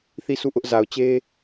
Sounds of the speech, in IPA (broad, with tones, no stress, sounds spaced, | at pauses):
θ i˦˨ s u˦˨ ʔ ʊ˦ ʔ z a˨ ʊ̯ t͡ɕ e˦